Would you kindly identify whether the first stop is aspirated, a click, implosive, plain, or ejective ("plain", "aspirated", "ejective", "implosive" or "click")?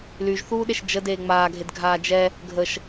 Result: implosive